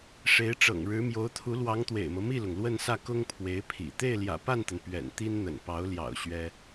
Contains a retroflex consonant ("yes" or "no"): yes